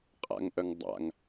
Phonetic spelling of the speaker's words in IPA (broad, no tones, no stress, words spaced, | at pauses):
qʼa̰ŋʔœŋ dˤa̰ŋ